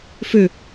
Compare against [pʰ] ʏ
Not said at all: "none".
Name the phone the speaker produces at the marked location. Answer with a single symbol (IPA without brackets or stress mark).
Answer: f